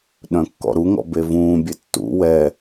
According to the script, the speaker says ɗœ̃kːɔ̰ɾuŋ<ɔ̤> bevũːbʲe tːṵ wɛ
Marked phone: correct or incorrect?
incorrect: ɔ̰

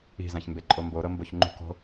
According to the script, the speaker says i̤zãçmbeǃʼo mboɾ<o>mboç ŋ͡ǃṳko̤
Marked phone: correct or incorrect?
incorrect: ɤ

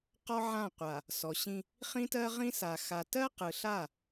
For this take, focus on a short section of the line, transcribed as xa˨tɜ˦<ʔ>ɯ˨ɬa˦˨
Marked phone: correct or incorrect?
incorrect: q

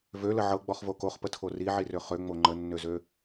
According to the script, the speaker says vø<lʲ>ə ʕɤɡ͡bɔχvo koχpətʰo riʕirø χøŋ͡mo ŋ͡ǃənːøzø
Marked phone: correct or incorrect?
incorrect: l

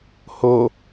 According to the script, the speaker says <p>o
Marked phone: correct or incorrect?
incorrect: h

